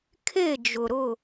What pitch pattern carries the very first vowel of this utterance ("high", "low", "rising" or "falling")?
falling